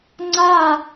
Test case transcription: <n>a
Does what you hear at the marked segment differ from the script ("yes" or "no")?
yes